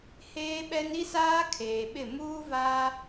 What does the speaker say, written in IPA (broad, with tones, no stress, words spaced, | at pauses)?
heː˦ɓɛ˦n i˦saː˦ kʰeː˨ɓɪ˦˨ muː˦vaː˦